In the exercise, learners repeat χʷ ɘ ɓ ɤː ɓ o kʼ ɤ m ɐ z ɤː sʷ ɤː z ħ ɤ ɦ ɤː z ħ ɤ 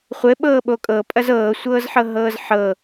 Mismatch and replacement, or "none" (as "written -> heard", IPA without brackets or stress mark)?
m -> pʼ